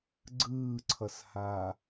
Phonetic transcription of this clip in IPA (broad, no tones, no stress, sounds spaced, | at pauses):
ɡ͡ǀ ɯː ǀʰ ʌ s h a